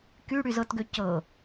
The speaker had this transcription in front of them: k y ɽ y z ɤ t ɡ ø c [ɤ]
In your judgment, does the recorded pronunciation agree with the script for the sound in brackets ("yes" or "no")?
yes